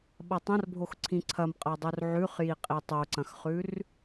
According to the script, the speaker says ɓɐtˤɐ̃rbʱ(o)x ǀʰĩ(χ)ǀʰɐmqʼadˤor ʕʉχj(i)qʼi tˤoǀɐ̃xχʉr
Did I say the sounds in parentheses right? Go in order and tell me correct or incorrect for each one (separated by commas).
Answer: correct, incorrect, correct